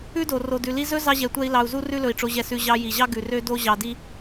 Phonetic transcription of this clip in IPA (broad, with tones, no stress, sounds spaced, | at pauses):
ʉ˦ d o˨ r o˨ d ʉ˨ l i˧ z ɵ˦ z ɑ˧ ʑ ɛ˨ tʷ ɛ˧ i̯ l ɑ˧ u̯ z u˦ r ʉ˦ l ɵ˧ i̯ ʈ͡ʂ o˧ ʑ ɛ˧ s ʉ˧ ʑ ɑ˧ j i˨ ʑ ɑ˦ ɡ ʉ˨ r ø˦ d o˦ ʑ ɑ˧ d i˦